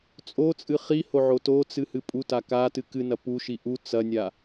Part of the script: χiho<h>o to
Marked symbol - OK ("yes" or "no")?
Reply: no